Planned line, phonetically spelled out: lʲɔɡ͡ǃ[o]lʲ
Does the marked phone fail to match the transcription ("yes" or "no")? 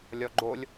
no